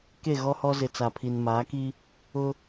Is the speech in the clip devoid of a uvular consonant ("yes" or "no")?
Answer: yes